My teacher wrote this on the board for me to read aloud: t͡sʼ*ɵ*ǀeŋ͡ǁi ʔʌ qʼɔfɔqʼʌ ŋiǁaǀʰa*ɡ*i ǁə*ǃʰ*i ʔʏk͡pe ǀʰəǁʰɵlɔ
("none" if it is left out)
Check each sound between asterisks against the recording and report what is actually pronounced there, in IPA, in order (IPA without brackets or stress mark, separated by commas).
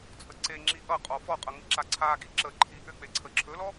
ə, ɡ, ǃʰ